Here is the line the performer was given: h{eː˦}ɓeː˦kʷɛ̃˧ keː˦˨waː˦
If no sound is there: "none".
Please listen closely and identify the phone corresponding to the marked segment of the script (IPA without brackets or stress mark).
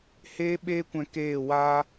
eː˦